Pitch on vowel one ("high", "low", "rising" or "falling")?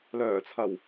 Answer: low